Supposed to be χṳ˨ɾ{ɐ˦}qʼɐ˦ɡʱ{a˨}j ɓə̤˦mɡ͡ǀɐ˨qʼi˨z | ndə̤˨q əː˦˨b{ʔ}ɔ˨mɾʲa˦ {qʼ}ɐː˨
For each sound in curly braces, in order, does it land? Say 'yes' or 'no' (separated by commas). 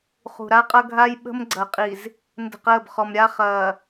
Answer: no, no, no, no